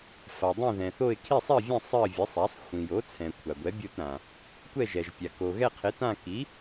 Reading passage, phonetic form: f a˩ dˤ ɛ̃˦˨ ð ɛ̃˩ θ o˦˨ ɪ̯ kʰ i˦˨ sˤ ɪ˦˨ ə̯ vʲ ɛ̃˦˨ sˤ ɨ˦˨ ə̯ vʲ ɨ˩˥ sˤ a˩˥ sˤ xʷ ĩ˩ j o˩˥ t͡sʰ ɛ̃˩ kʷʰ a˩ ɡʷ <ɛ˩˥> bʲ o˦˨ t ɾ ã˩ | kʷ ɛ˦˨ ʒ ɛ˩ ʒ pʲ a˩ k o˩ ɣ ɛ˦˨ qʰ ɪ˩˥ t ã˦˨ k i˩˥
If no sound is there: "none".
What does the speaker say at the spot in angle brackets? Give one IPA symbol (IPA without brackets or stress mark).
ɛ˩˥